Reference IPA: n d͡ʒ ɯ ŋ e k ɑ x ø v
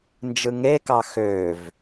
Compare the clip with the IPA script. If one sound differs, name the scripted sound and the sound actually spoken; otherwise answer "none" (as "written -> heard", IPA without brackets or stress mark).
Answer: none